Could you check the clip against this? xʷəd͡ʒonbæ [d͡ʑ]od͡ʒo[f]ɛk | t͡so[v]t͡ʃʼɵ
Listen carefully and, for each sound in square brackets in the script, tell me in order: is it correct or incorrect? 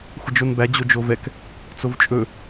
correct, incorrect: v, correct

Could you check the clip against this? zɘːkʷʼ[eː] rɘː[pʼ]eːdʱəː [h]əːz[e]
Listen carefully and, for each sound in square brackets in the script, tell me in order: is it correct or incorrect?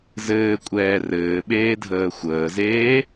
incorrect: ɛː, incorrect: ɓ, incorrect: xʷ, incorrect: eː

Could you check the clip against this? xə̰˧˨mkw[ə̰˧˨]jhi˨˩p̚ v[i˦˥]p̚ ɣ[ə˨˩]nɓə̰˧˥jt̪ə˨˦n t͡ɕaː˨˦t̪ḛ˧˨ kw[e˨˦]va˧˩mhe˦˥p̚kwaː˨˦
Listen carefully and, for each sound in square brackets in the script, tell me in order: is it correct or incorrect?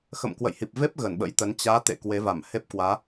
correct, incorrect: e˦˥, incorrect: ə˧˩, correct

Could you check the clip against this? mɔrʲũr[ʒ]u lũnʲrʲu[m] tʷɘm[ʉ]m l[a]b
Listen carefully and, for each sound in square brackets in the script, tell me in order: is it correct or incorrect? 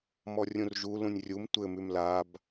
correct, correct, correct, correct

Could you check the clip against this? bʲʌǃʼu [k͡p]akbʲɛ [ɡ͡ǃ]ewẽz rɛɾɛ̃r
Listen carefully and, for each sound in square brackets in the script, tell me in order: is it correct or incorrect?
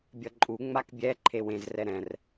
incorrect: ŋ͡m, incorrect: ǃʰ

